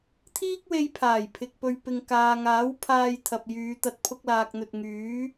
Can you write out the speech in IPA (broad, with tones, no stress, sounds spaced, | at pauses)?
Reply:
t̪ʰ iː˥ k̚ w e˧ j pʰ aː˨˩ j pʰ ɪ˨ k̚ p ɵ˨ ɥ p ɪ˨ ŋ k aː˨ ŋ aː˨˥ w pʰ aː˧ j t̪ʰ ɐ˨ p̚ j yː˨˧ t̪ ɐ˧ t̚ pʰ ʊ˧ k̚ l aː˨ k̚ n̪ ɵ˨ t̚ ŋ yː˨˥